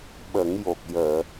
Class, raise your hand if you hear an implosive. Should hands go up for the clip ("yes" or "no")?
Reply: yes